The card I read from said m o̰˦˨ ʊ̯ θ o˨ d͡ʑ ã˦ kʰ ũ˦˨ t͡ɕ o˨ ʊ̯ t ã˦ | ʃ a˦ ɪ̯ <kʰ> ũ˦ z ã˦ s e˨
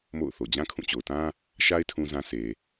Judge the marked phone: incorrect: tʰ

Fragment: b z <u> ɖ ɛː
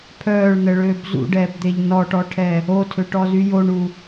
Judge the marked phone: incorrect: ṵ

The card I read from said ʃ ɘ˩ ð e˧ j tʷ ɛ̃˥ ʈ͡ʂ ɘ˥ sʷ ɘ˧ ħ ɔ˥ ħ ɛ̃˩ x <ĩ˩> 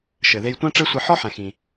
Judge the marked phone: correct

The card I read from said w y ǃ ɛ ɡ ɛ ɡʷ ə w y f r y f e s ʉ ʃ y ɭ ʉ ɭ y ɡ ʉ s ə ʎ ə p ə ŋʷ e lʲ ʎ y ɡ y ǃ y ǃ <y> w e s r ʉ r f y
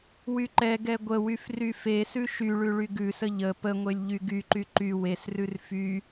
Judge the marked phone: correct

